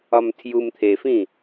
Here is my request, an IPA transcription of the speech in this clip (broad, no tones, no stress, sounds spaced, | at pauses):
ɒ m tʰ j u m t̪ʰ e f ĩ